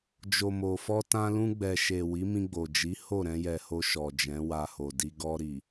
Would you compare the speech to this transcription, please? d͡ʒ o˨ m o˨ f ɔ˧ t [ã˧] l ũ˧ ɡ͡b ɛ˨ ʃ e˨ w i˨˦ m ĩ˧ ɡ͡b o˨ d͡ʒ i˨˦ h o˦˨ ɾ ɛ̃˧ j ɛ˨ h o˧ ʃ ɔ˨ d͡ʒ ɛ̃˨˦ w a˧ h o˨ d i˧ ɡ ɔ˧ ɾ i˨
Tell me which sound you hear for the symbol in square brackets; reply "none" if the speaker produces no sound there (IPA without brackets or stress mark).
ã˧